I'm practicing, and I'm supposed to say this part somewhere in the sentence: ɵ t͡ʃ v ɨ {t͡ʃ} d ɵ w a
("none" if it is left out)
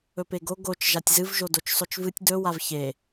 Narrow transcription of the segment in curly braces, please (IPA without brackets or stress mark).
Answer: tʲ